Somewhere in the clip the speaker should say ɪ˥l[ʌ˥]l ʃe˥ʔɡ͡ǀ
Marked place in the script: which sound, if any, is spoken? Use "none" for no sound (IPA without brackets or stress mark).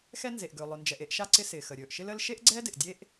ə˥